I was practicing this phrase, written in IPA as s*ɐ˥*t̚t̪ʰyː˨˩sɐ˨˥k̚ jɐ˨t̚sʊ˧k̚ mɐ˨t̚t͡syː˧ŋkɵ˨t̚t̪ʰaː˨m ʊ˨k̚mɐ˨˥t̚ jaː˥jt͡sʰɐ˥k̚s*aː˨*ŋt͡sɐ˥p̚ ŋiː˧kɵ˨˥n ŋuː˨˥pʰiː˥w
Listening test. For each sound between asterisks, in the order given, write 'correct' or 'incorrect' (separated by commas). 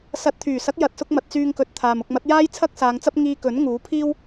incorrect, incorrect